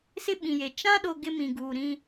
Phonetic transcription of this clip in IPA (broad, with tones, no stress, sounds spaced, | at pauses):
s ɪ˦ ɓ ĩ˨ j e˨ t͡ʃ ã˦ ɗ o˦ ɡ ɪ˦ m ĩ˨ ɡ uː˨ ɾ ĩ˦